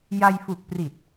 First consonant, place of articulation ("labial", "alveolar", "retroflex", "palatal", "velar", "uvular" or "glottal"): palatal